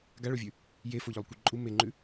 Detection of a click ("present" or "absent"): present